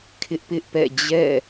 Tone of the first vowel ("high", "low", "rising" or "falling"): high